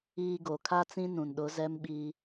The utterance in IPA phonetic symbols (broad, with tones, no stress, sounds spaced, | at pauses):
iː˨ ɡ o˨ kʰ a˦ t͡s ĩ˦ n ũ˨ n ɗ ʊ˨˦ z ɛ˦ m ɓ i˦